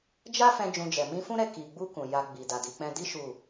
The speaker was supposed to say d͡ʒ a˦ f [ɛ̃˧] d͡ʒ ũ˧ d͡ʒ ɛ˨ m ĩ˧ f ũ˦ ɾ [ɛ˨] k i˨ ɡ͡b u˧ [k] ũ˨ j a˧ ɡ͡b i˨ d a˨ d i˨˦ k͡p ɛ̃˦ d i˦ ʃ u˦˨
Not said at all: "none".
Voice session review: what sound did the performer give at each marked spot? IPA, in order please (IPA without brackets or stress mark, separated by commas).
ɛ̃˧, ɛ˦˨, k